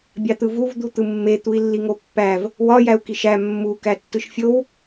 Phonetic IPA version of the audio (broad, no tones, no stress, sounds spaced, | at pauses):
bʲ ɑ t̪ ɯ v u v d̪ u t̪ ɯ mː e t̪ u i̯ lː i ŋ o pː æ v | w ɒ j æ u̯ k i ʃ æ mː u k æ tː ɯ ʃ fʲ o w